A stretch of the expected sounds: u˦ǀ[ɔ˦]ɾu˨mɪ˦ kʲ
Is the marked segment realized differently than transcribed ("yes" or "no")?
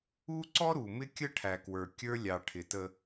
no